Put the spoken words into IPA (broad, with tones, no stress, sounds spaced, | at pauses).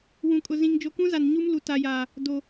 w ũ˨ kʼ ʊ˨ z ĩ˨ ŋ d͡ʒ o˨ k ũ˦ z a˨ n ɲ u˦ m l u˨ t a˨ j aː˨ | d o˨